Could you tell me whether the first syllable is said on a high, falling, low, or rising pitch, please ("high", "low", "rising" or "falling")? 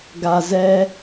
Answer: low